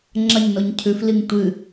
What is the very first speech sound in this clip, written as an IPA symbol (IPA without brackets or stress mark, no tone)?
ŋ͡ǁ